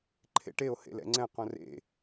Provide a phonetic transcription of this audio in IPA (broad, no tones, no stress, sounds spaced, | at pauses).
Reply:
ǃʰ ḛ ʈ e o̯ h ḛ l ɛ̰ ŋ͡ǀ ɛ̃ q õ r ḛ